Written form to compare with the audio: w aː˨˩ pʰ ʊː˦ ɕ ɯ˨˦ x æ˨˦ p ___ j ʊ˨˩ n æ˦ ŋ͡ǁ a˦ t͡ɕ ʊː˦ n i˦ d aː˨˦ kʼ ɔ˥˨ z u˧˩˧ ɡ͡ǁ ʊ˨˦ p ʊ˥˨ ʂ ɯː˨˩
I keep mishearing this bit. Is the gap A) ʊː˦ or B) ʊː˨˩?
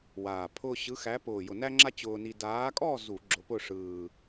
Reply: B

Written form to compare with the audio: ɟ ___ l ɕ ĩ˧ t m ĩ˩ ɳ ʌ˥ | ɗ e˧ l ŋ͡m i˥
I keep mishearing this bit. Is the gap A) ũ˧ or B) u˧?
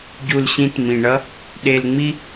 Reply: B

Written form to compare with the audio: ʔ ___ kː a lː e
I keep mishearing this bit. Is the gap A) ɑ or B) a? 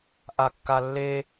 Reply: B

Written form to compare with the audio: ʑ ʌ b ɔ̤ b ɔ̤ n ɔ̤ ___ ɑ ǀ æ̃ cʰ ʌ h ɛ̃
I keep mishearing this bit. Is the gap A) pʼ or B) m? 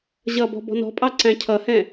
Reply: A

